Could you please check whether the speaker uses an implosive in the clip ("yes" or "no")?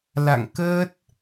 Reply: no